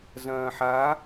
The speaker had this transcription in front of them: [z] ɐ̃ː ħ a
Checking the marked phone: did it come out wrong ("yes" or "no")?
no